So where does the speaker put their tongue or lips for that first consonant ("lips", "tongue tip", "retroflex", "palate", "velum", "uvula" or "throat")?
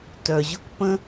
tongue tip